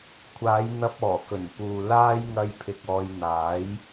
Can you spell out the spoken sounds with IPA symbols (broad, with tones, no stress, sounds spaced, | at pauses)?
kʷʰ aː˨˧ j n̪ ɐ˧ p̚ ɔː˨˩ k ɵ˨˩ n p uː˨ l aː˥ j ŋ ɐ˧ j pʰ ɪ˨ k̚ ɔː˧ j n̪ aː˨˥ j